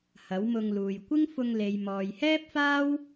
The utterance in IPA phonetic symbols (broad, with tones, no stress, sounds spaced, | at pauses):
h ɐ˨˥ w m ʊ˧ ŋ l uː˨ j kʷ ɪ˥ ŋ f ʊ˧ ŋ l e˨ j m ɔː˨ j h ɛː˥ p̚ f aː˥ w